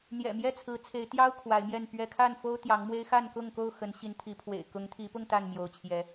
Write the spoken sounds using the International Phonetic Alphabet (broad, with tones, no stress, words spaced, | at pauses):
n̪jɛ̰˨˩mjɛ˥˨t͡sʰɹ̩˨˦ t͡sʰe˨˦ɪ̯t̪jɑ˦ʊ̯ kʰwa˨˦ɪ̯mjɛ˥˨npɥɛ˥˨ kʰa˥˨nfo˦ʊ̯ t̪jɑ˨˦ŋmwe˦ɪ̯xa˥˨nkʊ˥˨ŋ ko˥˨ʊ̯xə˨˦n ɕi˨˦nt̪ʰi˨˦pʰwḛ˨˩ɪ̯ kʊ˨˦ŋt̪ʰi˨˦pʊ˥˨ŋ t̪a˥˨nmjo˨˦ʊ̯t͡ɕʰjɛ˨˦